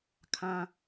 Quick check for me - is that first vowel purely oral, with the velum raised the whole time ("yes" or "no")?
no